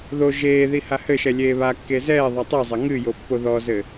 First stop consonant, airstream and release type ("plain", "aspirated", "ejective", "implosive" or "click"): plain